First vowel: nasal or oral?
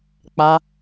oral